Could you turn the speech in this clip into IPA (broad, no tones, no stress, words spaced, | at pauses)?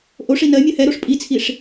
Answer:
ʔoʂi nɜmʲɜ hɛɾoʂ pʼit͡sʰiʂ